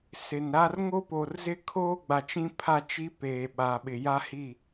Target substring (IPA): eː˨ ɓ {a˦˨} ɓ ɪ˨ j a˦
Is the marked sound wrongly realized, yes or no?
yes